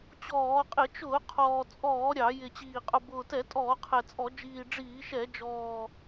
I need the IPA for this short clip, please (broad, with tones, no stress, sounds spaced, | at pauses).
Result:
t͡ɕ ɔː˧˩˧ qʼ ɪ˧˩˧ t͡ʃ ʊː˧˩˧ qʰ ɔː˨˩ t͡sʼ ɔː˧˩˧ ɾʲ ɑ˧˩˧ j ɪ˨˩ t͡ɕ iː˨˩ qʼ ʊ˨˩ b ʊː˨˩ t ɛ˧˩˧ tʼ ɔː˧˩˧ qʰ ɛ˨˩ t͡sʼ ɔ˧˩˧ d͡ʒ iː˨˩ ɖ͡ʐ iː˧˩˧ ʃ ɛ˧˩˧ d͡ʒ ɔː˨˩